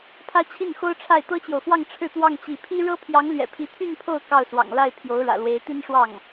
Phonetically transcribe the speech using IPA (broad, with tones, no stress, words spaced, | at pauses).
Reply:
pʰä˥t͡ɕʰi˥˩nxo˥ʊ̯ʈ͡ʂʰa˥˩ɪ̯ t̪ɤ˥t͡ɕjo˨ʊ̯fwɑ˥˧ŋ ʈ͡ʂʰɻ̩˥˧t̪wɑ˥˧ŋ t͡ɕi˥˩ pʰi˥ ɻɤ˥pʰjɑ˧˥ŋlɥɛ̰˨˩ pʰi˧˥t̪ʰy˥˧n pʰo˥˧ʊ̯ kɑ˥˩ʊ̯swɑ̰˨˩ŋla˥˩ɪ̯ pʰjo˧˥ʊ̯ɻä̰˨˩lwe˧˥ɪ̯ t̪i˥nʂwɑ˥˩ŋ